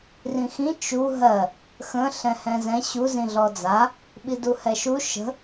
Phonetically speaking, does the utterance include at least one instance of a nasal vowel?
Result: yes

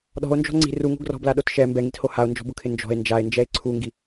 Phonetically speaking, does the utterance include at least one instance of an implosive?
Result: yes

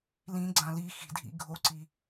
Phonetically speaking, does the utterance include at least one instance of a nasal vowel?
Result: yes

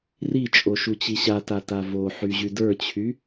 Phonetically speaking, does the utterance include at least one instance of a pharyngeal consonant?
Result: yes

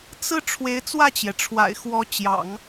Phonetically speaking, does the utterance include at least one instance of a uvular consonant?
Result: no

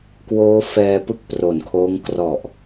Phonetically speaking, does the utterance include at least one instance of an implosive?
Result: no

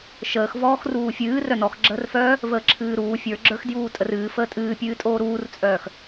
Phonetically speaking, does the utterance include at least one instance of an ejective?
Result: yes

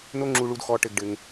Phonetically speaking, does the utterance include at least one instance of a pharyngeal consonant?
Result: no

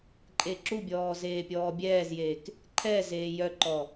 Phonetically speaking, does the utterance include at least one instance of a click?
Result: yes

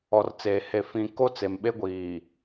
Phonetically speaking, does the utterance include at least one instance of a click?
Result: no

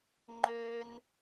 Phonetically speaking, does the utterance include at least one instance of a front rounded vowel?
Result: yes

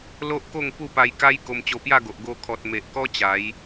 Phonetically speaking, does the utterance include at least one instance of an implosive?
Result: no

